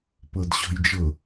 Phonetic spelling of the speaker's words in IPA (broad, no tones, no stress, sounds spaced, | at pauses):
p ɤ d ɕ ɔ̤ j d͡ʒ ɤ